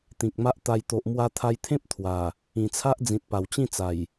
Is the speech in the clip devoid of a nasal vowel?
no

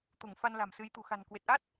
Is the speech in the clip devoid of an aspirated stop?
yes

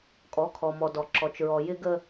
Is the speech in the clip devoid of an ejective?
no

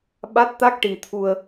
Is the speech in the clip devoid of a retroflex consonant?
no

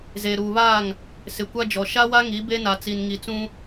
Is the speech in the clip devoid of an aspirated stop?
yes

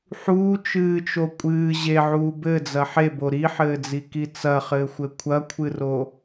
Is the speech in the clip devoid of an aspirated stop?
no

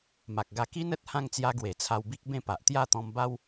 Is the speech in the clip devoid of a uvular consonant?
yes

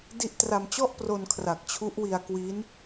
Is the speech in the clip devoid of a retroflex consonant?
yes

